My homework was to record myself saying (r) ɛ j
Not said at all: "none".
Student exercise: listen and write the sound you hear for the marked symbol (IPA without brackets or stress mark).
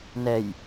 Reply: n